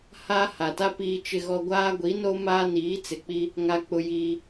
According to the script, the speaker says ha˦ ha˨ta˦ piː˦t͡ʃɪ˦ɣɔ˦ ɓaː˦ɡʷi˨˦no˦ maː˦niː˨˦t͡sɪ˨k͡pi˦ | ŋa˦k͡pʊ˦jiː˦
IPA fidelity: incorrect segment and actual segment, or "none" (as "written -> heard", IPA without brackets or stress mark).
ɓ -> ɡʷ